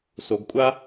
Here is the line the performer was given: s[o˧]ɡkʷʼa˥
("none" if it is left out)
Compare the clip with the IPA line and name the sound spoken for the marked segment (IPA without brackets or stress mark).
o˧